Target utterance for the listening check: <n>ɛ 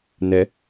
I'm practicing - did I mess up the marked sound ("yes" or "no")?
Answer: no